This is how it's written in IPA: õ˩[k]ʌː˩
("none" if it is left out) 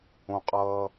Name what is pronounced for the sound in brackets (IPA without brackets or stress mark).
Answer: qʼ